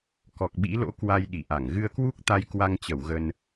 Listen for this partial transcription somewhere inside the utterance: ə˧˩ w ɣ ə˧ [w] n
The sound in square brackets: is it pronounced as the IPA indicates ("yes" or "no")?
no